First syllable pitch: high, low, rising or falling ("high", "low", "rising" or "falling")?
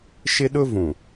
high